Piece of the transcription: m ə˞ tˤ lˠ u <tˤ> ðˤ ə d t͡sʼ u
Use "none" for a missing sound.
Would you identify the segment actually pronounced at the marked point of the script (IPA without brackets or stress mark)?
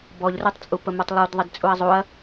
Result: d